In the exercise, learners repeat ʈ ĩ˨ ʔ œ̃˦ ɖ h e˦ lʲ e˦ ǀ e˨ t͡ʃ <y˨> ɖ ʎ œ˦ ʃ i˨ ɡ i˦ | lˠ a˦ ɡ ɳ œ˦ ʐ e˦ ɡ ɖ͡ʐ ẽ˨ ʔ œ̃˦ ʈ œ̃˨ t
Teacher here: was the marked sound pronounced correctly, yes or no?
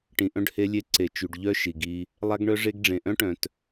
yes